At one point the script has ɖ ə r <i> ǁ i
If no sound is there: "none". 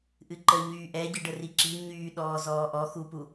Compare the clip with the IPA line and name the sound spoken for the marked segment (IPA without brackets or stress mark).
i